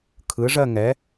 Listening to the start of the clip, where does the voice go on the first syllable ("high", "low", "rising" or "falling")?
rising